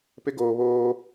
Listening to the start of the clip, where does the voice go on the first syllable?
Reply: high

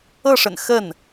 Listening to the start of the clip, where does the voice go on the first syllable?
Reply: falling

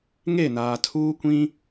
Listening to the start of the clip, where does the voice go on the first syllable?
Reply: falling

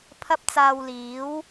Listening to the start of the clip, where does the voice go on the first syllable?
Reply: high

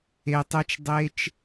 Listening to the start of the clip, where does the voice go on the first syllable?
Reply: low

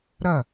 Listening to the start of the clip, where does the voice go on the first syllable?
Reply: falling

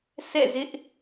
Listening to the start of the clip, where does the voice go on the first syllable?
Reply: falling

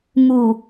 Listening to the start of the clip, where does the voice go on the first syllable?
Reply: low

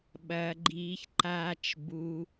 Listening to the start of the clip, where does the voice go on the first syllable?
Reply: low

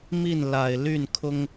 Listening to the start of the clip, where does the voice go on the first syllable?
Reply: falling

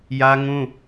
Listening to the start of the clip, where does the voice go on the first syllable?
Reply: high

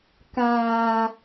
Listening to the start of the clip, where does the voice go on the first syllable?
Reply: low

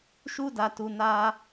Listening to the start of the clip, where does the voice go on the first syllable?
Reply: high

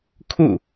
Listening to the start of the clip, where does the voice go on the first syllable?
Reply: falling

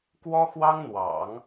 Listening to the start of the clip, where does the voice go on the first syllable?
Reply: high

